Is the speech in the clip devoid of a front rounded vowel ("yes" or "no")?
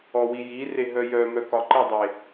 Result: no